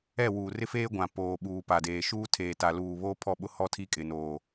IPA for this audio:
ɛ˦˨ w uː˨ r ɪ˦ f eː˦ ɡʷ ã˨ p oː˨ ɓ uː˨ p a˨ d eː˨ ʃ uː˦ tʰ eː˨ t a˨ l uː˨ β oː˦ pʰ ɔ˦˨ ɓ ʊ˦ h ɔ˦ tʰ i˦ kʼ ɪ˨ n oː˨

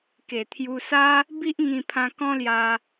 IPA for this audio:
k e˨˩ t̪ʰ j u˧ s a˦ | b i˦ ʔ ŋ ĩ˧ pʰ ã˧ k ɔ̃˦ l j a˧

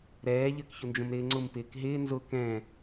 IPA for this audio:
ɾ ɛː ʎ ə˞ k ç ʊ n d͡ʒ ə̃ m ɾ ɪː ŋ͡ǀ ʊ m p ɪː k ɦ ɪː n z ʊ k ɛ̃

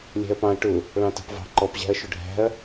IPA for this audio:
lʲ æ̤ ɐ̯ p ɑ̃ ɐ̯ ʈ ʊ | ɭ ɑ̃ t ɑ̤ p v ɑ̤ ǃ ɔ p ʑ æ̤ ɐ̯ ʃ ʊ ɖʱ æ̤ ɐ̯

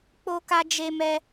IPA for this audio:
k͡p o˦ k a˦ d͡ʒ e˦ m ɛ˦

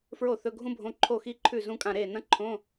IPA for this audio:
f ɹ o˥˩ θ ɵ˧˥˧ ɡʱ ũ˥ bʱ õ˧˥˧ ǃʰ o˥˩ x i˥ ǃʰ ʉ˥˩ z ũ˥ kʼ ã˥˩ ɾ e˥˩ n ɐ̃˥ ǃʰ õ˧˥˧

